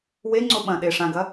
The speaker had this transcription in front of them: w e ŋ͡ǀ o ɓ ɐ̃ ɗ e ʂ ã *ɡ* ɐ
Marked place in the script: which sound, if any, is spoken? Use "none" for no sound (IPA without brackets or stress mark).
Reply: ɡ